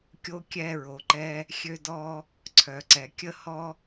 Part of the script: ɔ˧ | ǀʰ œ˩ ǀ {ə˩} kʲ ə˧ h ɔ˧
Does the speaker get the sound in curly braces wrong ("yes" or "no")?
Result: yes